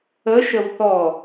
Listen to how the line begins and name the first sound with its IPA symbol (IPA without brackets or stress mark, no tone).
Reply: ə